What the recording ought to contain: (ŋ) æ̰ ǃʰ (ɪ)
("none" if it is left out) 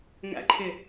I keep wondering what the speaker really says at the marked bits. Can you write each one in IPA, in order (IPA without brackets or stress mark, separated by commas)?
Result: ŋ, ɪ